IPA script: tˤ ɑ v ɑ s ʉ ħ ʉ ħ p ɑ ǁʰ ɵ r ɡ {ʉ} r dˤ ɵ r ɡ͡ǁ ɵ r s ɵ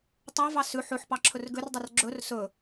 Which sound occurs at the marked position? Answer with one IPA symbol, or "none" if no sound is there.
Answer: ø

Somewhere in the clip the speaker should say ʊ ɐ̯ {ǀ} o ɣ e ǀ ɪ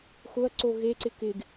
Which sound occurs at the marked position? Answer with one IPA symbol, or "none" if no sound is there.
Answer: ǀ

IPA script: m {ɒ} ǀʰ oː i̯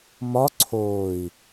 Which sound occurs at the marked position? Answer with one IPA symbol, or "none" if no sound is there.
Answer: ɒ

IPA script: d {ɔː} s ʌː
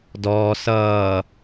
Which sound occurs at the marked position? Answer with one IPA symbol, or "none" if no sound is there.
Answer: ɔː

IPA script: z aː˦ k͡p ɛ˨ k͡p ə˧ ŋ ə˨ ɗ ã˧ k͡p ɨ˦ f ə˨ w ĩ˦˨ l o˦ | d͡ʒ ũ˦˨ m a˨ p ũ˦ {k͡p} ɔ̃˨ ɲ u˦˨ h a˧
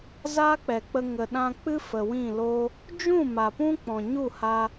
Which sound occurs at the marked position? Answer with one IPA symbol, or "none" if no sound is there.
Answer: k͡p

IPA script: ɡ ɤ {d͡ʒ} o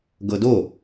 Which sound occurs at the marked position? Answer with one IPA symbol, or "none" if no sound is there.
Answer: d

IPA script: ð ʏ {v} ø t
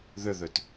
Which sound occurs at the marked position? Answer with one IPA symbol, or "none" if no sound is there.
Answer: ð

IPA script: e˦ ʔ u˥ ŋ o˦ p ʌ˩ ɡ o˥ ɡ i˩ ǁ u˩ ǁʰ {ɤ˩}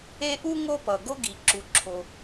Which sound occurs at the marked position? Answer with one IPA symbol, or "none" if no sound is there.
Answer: o˩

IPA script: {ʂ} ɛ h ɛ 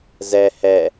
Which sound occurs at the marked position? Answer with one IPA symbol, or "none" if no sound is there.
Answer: z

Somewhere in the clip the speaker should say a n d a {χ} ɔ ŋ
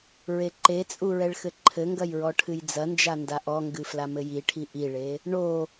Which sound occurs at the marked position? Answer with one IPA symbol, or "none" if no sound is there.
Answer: ʔ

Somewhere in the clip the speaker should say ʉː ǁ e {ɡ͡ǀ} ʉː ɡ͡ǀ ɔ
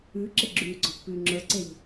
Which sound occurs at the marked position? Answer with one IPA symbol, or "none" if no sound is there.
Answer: ɡ͡ǁ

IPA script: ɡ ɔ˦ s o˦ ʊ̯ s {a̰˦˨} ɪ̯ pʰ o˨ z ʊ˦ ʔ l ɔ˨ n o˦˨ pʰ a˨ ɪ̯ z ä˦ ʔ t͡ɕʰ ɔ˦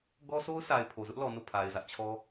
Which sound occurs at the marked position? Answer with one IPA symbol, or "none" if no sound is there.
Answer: a˨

